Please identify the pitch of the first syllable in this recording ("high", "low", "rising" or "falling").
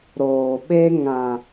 low